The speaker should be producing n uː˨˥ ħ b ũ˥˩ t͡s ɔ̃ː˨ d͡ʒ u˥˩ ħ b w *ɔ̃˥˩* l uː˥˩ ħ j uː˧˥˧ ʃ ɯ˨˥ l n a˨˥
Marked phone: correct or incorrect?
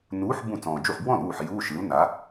correct